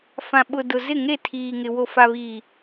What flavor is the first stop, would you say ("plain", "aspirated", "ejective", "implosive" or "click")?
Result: implosive